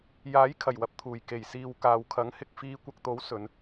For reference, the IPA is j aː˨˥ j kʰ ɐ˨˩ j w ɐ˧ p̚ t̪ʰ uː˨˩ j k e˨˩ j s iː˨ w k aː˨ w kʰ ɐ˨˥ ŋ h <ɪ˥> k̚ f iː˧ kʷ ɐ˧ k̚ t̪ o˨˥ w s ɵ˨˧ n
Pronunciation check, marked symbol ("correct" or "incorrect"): incorrect